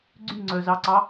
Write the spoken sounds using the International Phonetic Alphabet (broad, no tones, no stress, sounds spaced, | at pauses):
ɡ͡ǀ y ŋ͡ǀ œ z ɑ ǀ ɑ